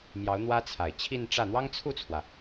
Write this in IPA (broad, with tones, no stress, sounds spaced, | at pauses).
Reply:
m j ɑ˧˥ ʊ̯ n̪ w ä˥ t͡sʰ a˨˩ ɪ̯ t͡ɕʰ i˥˧ n ʈ͡ʂ ä˥˩ n̪ w ɑ˥ ŋ t͡sʰ u˥˩ t͡sʰ w ä˩